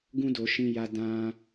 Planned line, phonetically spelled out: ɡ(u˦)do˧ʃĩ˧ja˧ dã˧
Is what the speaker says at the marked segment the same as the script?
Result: no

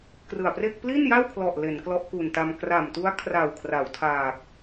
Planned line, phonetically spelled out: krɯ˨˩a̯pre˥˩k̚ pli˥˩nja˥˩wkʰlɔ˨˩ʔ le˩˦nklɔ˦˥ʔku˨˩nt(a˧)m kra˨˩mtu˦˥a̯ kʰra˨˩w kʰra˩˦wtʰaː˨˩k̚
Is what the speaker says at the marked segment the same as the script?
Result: yes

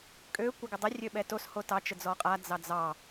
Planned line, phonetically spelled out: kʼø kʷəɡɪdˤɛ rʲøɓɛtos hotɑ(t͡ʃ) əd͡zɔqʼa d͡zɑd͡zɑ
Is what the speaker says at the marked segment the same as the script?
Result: yes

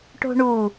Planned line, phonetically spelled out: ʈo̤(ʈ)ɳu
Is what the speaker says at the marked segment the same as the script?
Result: no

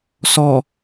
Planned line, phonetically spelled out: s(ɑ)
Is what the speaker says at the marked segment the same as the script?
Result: no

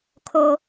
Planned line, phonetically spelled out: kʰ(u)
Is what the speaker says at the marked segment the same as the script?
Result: no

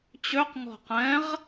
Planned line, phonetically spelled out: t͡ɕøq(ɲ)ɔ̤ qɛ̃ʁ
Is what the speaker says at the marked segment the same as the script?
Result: no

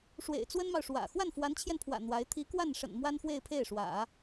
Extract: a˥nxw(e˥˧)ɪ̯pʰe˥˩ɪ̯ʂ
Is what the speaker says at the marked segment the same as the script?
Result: yes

